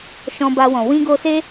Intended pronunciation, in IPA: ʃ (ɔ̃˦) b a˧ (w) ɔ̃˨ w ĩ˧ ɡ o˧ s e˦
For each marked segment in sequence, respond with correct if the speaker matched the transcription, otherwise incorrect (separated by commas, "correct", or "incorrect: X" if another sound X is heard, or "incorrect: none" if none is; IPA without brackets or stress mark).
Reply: incorrect: ɔ̃˧, correct